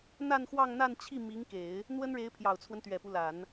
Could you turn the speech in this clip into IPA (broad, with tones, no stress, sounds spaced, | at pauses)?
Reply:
n̪ a˥˧ n x w ɑ˥˧ ŋ n̪ a˥˧ n t͡ɕʰ i˥˩ m i˧˥ ŋ k e˨˩˦ ɪ̯ | n̪ w ə˥ n ɻ e˧˥ ɪ̯ pʰ j ɑ˨˩ ʊ̯ t͡sʰ w ə˦ n t̪ ɥ ɛ˨˩ p u˦ l a˨˩˦ n